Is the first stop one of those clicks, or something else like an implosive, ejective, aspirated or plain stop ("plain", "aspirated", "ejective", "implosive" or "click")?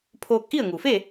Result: aspirated